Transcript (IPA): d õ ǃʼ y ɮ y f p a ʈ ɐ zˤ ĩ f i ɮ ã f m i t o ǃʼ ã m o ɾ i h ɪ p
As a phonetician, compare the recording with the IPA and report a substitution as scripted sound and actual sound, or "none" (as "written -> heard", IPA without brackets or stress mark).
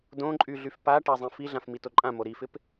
h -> f